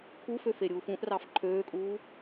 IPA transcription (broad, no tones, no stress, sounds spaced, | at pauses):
kʰ u f ø f e ɾʲ uː f ũ ʔ r ɑ f ǃʰ øː kʼ uː